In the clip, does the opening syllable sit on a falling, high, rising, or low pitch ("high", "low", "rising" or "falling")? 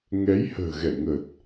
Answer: rising